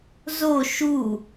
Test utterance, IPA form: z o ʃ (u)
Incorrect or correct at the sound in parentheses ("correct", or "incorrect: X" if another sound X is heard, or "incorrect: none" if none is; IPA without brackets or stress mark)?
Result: correct